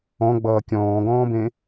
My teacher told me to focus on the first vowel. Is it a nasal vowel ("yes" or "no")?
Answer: yes